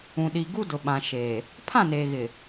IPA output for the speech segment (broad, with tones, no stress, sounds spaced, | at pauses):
ũ˨ ɗ i˨ ɡ u˦ d ʊ˨ ɓ ã˨ ʃ eː˨ | pʰ ã˦˨ n eː˨ ɣ ɪ˨